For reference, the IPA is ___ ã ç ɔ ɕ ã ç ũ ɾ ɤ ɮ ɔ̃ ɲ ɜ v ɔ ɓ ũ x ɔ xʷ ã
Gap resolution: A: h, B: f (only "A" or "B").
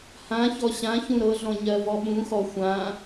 A